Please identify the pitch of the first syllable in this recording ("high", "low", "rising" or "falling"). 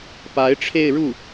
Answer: rising